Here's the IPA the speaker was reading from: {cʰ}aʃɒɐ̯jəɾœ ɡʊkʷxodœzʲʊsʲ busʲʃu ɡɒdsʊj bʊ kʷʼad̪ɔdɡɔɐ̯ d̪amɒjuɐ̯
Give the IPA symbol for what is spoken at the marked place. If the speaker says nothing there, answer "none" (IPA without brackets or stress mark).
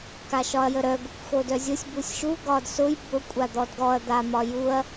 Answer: k